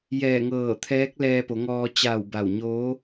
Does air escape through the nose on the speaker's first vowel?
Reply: no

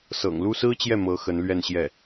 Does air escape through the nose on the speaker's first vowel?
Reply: no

